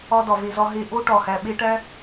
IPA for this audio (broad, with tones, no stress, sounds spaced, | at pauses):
ɒ˧ d ɒ˨ v e˨ z ɒ˧ ɦ e˧ ʔ o˦ ʈ ɒ˨ h æ˨ ɓ e˦ ʈ æ˦